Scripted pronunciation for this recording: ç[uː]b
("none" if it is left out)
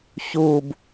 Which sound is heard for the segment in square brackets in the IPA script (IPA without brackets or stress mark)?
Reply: uː